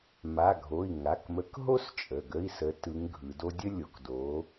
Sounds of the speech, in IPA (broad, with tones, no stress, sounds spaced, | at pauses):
m a˩˧˩ ɡʱ o˩˧˩ i̯ ŋ a˩˧˩ k m ə˨˥ k ɦ o˥ s t͡ʃʼ ə˩˧˩ ɡ ə˧˥˧ i̯ s ə˨˥ t ɯ˨˥ ŋ ɡʱ ɯ˩˧ d o˥ dʲ ə˥ lʲ o˩˧ k d o˨˥